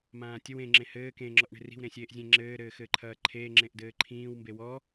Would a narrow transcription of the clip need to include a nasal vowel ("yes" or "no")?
yes